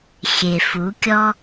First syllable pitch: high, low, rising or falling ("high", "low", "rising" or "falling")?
low